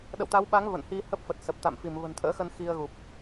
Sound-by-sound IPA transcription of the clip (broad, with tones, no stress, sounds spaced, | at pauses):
ɗ ə̰˧˨ w t̪ a˨˦ w ɓ a˨˦ ŋ v ə̰˧˨ n h i˧ h ə˦˥ p̚ f ə˨˩ t̚ s ə˨˩ p̚ t̪ a̰˧˨ m f i˧˩ m v ə̤˨˩ n t̪ʰ ə̰ː˧˥ x ə˧ n x i˧ ə̯ ɣ u˨˩ p̚